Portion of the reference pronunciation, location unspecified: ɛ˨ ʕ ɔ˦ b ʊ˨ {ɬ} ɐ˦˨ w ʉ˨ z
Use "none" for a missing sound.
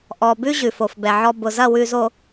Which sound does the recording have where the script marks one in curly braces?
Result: z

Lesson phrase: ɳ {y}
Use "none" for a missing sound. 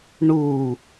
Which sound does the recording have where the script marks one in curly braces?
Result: u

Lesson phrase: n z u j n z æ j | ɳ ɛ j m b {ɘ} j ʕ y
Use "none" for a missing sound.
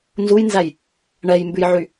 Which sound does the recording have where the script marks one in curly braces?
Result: ʉ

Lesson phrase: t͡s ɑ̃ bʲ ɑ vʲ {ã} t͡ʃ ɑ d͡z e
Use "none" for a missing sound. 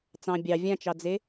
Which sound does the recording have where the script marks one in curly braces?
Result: ã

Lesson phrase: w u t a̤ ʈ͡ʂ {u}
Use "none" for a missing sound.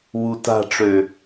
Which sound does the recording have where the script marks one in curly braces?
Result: ø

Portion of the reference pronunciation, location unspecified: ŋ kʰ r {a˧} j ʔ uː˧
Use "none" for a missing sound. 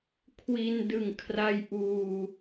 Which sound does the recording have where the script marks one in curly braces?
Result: a˧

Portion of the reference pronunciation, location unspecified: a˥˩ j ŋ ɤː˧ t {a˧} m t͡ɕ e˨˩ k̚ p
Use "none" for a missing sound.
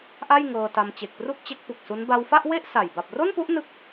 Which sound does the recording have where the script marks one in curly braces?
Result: a˧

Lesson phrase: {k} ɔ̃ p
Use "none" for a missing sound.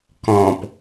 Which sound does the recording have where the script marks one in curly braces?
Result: k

